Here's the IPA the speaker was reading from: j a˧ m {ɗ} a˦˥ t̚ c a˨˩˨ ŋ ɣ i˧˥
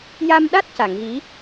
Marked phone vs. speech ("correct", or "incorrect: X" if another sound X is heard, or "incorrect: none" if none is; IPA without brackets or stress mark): correct